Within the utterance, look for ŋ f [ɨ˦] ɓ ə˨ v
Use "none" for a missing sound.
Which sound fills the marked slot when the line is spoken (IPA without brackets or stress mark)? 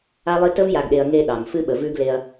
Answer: ɨ˦